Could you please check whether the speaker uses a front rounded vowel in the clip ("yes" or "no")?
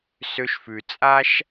yes